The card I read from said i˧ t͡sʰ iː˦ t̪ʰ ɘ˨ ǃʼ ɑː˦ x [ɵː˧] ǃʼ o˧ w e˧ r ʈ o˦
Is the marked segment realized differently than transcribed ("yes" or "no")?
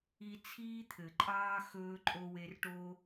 no